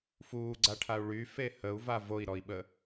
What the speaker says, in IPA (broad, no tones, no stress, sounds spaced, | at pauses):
f uː ɡ͡ǀ a ʈʰ a u̯ ɭ y f e h ə u̯ v a v o i̯ ɾ ɔ i̯ ɓ ə